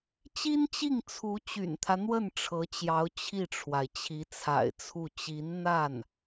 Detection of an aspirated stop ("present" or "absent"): present